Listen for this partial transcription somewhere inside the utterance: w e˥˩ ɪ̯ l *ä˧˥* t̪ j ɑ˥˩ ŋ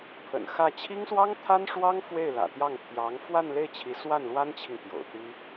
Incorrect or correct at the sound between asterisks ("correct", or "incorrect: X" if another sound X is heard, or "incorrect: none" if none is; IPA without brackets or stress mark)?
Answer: incorrect: ä̰˨˩